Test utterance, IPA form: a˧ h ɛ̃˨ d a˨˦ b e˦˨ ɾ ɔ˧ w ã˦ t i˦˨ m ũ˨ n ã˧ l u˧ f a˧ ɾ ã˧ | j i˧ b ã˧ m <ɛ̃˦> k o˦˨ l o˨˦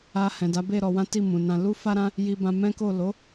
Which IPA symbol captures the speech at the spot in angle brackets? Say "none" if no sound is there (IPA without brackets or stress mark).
ɛ̃˦